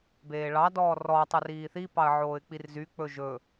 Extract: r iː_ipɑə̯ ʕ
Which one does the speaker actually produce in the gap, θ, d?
θ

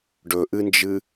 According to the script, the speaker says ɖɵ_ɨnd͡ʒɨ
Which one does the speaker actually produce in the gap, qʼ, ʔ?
ʔ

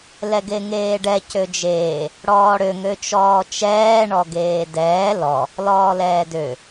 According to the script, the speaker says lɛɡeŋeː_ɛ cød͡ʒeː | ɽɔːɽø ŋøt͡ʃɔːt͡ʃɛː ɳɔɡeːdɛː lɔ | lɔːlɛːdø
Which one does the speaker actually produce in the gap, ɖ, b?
ɖ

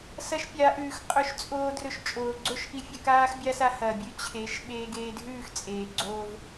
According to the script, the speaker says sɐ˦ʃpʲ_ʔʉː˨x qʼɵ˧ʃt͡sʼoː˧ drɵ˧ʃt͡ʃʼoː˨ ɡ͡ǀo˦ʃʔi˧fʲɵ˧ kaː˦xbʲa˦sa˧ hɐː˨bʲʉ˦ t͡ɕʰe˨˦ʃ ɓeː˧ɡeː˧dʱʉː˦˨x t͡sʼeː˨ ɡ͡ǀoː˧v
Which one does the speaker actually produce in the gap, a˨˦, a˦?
a˨˦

